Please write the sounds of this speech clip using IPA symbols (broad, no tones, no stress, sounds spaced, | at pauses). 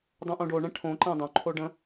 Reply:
dˤ õ ʔ õ ɖ o ɳ ɛ̃ ʈʰ õ ǃ ɛ̃ dˤ õ ǃʰ o ɖ ə̃